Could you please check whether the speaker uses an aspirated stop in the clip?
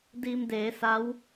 no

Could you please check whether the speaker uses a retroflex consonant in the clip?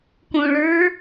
yes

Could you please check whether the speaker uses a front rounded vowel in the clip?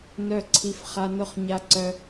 yes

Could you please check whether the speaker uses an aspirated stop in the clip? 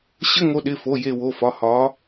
no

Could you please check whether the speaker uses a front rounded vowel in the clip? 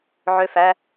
yes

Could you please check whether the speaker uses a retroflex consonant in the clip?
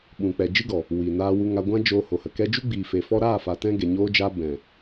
no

